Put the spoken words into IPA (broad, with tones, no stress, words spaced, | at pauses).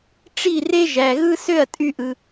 ʈ͡ʂi˥˩re˥ ʒæ˩ɣɯ˥ sø˥˩ɐ̯tʼy˧ʔɯ˩